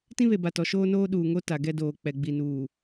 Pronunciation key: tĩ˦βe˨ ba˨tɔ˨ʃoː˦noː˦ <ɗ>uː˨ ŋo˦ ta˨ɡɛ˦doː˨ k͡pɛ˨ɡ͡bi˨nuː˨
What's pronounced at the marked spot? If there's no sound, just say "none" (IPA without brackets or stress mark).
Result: ɗ